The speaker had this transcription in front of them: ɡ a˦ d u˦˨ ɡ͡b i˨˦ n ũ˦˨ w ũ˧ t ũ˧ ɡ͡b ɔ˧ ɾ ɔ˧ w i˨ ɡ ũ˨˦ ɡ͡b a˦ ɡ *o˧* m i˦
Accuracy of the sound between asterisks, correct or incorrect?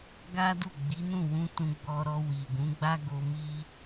correct